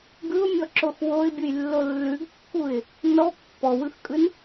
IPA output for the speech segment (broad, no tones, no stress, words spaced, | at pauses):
ɡɯʊ̯mʲɔǁox woɪ̯bʲujlːo lːʉɡkːuɪ̯ | nɔ pːɔwɯxkʼɯn